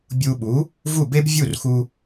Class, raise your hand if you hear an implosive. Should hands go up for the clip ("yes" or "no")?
yes